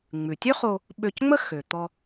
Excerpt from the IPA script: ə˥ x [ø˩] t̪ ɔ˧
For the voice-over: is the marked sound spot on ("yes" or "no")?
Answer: yes